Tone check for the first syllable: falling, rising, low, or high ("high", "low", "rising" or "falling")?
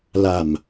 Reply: low